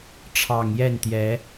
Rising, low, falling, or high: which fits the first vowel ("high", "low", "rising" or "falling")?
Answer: low